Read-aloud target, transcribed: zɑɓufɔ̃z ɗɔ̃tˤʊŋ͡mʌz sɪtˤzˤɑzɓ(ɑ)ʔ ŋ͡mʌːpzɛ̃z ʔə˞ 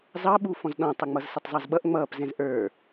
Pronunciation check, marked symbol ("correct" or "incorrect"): incorrect